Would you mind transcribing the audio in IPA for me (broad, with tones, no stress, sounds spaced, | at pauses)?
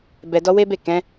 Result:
b ɛ˧ d ɔ˦ w e˦ b e˦˨ k ɛ̃˨˦